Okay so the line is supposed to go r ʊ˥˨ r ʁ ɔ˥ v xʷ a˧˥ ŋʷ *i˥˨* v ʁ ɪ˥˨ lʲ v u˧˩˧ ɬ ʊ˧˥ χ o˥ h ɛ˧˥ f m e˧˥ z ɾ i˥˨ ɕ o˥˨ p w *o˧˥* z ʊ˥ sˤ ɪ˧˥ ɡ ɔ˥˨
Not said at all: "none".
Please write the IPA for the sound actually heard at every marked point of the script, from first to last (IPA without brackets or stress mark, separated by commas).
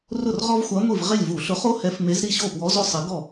i˥˨, ɔ˧˥